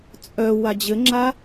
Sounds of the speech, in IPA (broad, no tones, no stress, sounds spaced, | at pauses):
t͡sʼ œ w a d͡ʑ ɘ ŋ͡ǁ a